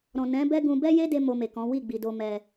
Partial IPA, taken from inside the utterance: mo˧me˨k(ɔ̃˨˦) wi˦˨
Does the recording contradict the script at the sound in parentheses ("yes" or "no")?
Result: no